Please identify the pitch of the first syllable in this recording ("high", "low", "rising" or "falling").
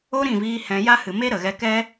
high